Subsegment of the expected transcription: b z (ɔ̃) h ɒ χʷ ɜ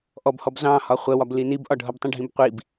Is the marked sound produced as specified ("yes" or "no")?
no